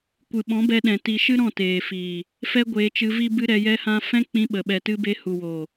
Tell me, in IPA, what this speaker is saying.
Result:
kʷɨ˨ɓɔ̃˨˦bɛ˧ɗɛ̃˨ ti˨ʃɨ˦ ɾɔ̃˦˨teː˨fiː˨ | fɛ˦ɡʷeː˧t͡ʃɨ˧vi˦ bɨ˦ɾɛ˧jɛ˦hã˦ fɛ̃˦k͡pĩ˧ɓə˨ ɓɛ˨tɨ˧ be˧ hu˨woː˨

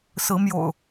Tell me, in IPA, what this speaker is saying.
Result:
sɹ̩˨˦mjo̰˨˩ʊ̯

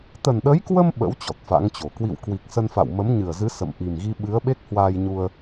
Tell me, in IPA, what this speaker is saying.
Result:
t̪ə˨˩nɗə˨˦jkwə˧m ɓə̰˧˥w t͡ɕɔ˨˩t̚fa̰˧˥ŋt͡ɕo˨˩ kwḭ˧˨w kwi˨˩k̚sə˧n fa̰˧˨wmə˨˦mɲɨ˨˩ə̯zɨ˨˦ sə̰˧˨m ʔi˨˩mɣi˧ɓɨ˨˦ə̯ ɓe˦˥k̚hwaː˧jɲu˧ə̯

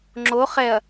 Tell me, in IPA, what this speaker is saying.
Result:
ŋ͡ǁo χɛɐ̯

